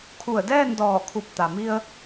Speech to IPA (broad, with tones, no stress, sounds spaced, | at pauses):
kʰ u˧˩ ə̯ d ɛː˥˨ n d ɔː˧˩ kʰ u˧˩ p̚ t̪ a˩ m i˧ ə̯